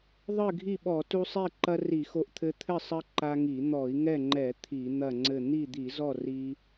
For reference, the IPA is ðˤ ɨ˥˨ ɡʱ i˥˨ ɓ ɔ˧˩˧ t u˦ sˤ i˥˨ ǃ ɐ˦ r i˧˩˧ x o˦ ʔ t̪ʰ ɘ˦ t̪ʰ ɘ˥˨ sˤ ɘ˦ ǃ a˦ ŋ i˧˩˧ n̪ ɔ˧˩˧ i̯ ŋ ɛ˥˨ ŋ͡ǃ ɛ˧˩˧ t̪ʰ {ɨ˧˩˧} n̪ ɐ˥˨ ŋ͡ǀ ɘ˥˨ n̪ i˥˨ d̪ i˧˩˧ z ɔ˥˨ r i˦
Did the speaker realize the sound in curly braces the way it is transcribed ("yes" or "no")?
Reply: no